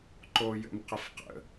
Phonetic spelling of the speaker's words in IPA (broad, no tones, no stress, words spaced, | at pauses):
ǃoːjə̰mqəfqə̰